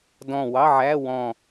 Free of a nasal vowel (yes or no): no